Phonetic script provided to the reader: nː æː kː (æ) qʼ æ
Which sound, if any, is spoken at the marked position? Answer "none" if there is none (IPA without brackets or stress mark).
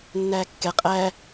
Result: ɛ